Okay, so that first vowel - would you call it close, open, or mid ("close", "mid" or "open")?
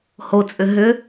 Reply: mid